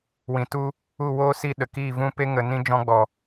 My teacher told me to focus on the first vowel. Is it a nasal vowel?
yes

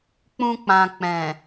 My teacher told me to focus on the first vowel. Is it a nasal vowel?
yes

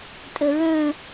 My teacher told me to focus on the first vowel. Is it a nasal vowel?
no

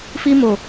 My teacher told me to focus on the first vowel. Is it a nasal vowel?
no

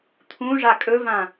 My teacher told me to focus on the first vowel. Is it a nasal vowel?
yes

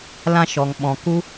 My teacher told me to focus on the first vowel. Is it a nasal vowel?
yes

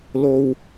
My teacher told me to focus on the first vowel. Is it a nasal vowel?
no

